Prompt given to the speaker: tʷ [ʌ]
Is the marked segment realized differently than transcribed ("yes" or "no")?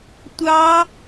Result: yes